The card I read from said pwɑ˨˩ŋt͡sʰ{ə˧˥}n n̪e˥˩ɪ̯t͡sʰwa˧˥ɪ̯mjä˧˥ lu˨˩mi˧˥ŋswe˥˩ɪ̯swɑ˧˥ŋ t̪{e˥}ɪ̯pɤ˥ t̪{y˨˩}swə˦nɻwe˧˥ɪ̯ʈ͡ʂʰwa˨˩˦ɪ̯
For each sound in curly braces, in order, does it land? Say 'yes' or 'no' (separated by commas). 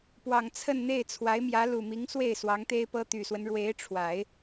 no, yes, yes